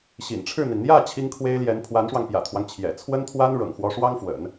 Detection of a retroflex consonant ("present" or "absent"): present